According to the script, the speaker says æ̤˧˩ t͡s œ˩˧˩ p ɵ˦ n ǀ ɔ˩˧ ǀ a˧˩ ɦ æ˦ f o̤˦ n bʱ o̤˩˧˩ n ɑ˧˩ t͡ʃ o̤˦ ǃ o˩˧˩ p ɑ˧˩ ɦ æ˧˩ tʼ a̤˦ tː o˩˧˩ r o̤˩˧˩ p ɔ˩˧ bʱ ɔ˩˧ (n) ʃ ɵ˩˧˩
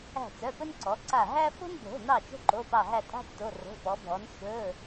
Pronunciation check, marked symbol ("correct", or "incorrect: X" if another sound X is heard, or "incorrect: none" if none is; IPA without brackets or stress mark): correct